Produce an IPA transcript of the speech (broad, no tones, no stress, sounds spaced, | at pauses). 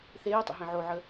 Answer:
θ eː tˤ ə̰ ɦ ẽ ʕ o ʕ ə